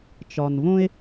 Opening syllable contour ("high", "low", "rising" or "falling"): low